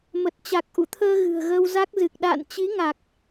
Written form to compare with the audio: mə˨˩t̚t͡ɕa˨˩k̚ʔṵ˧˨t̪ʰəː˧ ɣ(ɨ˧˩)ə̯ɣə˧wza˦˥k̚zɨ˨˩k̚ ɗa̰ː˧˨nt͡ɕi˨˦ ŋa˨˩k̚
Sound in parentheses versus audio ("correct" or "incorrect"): incorrect